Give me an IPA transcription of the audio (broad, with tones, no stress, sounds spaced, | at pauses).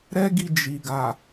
ɾ ɛ˦ ɡ i˧ d͡ʒ i˨ ɡ a˨